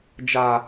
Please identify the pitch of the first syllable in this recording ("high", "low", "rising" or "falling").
low